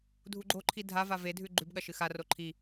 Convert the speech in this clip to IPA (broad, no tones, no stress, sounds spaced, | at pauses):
dʱ u ɡ͡ǃ o ǃʰ i dʱ a v a v e dʱ ʉ ɡ͡ǃ ʉ b ɠ ɐ ʃ ɨ x a r o ǃʰ i